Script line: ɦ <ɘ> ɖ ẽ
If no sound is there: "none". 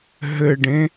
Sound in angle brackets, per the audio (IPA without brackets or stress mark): ɘ